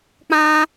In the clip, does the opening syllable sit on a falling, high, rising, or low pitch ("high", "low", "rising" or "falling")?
high